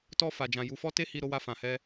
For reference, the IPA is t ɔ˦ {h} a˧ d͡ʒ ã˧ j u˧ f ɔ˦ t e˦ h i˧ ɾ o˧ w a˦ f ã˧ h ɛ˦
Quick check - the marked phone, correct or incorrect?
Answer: incorrect